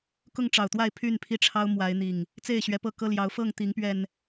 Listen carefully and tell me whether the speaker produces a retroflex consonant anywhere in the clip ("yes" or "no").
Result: yes